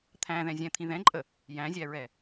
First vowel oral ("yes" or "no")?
no